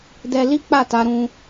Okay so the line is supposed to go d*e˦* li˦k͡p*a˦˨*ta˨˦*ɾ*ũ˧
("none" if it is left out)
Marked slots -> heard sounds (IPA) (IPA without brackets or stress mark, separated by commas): ɛ˦, a˦˨, ɾ